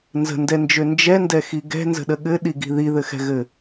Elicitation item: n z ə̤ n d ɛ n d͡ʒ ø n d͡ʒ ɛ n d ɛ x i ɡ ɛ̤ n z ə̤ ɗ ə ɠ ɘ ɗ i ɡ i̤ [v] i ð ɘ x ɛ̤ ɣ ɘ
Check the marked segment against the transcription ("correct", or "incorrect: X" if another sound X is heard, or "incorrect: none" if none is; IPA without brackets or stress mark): incorrect: ð